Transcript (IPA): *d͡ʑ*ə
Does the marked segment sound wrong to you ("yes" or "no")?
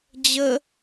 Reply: no